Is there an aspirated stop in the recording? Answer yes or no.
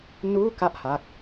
no